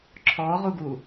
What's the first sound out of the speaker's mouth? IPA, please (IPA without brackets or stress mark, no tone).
ǁʰ